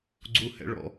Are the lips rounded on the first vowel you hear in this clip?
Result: yes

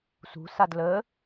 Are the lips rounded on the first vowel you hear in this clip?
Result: yes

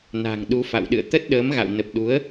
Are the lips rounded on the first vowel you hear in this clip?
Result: no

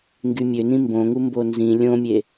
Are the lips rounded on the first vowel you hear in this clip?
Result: yes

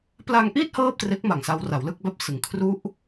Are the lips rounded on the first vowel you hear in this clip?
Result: no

